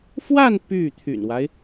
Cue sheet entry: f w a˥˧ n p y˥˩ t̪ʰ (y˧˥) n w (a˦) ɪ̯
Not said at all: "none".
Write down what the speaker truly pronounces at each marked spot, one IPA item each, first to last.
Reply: y̰˨˩, a˦

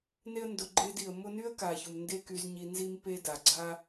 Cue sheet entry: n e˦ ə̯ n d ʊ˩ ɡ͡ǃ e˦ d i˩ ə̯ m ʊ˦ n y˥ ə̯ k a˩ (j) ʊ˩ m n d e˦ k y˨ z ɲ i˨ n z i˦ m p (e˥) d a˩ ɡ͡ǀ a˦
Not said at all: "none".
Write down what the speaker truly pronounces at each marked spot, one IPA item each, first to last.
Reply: ç, e˥

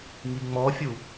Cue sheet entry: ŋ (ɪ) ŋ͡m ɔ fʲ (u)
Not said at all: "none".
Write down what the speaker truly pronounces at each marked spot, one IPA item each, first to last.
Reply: i, u

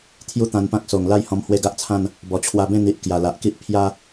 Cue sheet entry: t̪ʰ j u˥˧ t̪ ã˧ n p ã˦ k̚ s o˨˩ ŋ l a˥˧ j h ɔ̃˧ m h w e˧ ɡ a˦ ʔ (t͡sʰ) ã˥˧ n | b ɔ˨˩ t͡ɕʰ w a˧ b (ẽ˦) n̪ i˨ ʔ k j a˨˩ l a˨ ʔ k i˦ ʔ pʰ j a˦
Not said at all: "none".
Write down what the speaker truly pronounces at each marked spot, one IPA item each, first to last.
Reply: t͡sʰ, ẽ˥˧

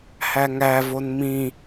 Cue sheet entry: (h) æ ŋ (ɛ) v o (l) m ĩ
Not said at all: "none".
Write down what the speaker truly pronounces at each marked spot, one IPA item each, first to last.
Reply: h, æ, n

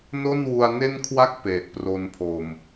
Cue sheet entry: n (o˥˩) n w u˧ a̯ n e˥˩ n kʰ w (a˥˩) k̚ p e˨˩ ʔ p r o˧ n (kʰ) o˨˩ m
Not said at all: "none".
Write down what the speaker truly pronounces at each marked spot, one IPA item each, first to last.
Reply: o˥˩, a˥˩, pʰ

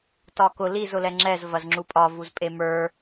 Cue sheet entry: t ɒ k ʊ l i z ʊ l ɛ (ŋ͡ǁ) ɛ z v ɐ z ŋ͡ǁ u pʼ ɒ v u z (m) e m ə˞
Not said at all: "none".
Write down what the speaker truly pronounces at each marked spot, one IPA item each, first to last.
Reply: ŋ͡ǁ, pʼ

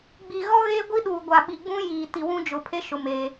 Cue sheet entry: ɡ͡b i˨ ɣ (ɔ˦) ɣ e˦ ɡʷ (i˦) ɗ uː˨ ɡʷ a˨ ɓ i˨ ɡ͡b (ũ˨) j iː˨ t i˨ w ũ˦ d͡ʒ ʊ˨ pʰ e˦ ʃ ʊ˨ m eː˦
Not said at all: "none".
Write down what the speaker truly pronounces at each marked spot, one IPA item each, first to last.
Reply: ɔ˦, i˦, ũ˦

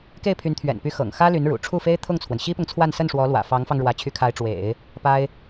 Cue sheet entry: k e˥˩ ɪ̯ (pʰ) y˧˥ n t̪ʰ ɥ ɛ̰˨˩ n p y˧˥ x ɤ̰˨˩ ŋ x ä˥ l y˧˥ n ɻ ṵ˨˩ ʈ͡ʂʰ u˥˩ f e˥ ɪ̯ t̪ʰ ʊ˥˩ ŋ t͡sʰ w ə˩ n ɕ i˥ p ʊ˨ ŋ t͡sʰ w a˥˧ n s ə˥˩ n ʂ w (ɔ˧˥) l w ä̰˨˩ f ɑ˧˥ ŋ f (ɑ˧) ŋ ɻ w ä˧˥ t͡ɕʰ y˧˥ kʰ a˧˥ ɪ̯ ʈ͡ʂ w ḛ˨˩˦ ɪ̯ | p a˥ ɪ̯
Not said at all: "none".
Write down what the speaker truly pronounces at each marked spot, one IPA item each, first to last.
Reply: pʰ, ɔ˧˥, ɑ˧

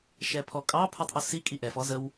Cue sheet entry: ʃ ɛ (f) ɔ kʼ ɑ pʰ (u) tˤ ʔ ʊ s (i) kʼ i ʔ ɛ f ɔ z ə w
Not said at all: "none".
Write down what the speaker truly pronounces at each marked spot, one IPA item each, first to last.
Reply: pʰ, u, i

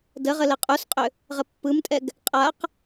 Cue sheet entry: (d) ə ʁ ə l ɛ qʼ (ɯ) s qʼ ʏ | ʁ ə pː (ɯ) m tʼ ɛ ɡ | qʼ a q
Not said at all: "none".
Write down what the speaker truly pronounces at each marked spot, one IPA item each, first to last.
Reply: d, u, ɯ

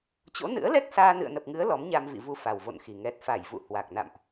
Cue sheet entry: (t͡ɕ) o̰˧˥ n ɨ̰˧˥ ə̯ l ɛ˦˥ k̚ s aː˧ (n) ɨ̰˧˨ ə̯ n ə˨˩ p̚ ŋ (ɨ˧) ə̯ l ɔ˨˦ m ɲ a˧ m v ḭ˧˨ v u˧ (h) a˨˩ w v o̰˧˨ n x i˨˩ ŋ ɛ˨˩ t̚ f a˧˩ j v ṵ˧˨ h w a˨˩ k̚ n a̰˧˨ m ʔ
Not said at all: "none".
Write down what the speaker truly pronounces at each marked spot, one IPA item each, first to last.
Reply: t͡ɕ, n, ɨ˨˦, f

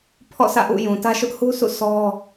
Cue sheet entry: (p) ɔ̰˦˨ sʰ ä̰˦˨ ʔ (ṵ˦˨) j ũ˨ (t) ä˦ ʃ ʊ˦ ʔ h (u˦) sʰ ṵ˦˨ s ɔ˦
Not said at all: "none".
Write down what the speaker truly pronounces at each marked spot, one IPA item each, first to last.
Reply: pʰ, ṵ˦˨, t, u˦

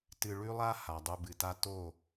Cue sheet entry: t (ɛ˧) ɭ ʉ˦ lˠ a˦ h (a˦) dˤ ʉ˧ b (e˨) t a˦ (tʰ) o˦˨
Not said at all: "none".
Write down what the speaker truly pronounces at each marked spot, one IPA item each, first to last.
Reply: ɨ˧, a˨, ɨ˨, t

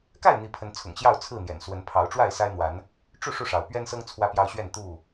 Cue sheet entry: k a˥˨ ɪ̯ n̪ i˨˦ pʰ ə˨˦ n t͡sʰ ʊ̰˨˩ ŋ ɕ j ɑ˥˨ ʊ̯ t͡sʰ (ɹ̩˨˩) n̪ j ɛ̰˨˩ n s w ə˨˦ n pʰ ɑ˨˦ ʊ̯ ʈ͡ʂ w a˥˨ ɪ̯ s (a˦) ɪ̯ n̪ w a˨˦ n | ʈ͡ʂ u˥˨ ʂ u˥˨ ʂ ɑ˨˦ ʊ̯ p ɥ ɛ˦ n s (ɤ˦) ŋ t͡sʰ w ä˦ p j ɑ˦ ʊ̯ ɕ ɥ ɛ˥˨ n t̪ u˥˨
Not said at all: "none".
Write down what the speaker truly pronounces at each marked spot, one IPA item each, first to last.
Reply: ɹ̩˥˨, a˦, ɤ˦

